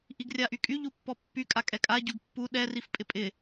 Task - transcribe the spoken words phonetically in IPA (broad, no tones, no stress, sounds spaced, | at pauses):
ʔ i ɡ rʲ a ʔ y kʼ y ʎ u pː ɔ pː y kʼ a kʼ ɛ kʼ a ɟ u ɡ pː u ɗ ɛ r i f pʼ ɪ pʼ ɪ